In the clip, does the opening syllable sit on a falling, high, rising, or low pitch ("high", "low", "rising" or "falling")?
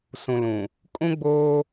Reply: low